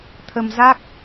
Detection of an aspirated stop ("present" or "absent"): present